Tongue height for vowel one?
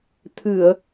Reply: high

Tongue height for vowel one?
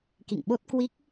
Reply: high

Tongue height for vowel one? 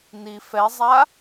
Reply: high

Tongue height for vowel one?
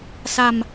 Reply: low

